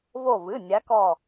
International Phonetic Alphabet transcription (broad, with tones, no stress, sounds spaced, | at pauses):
v o˧˩ v ɨ˩˧˩ nʲ a˨˦ k ɔ˧˩